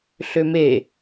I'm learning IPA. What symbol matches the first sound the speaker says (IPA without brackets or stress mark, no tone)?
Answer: ɬ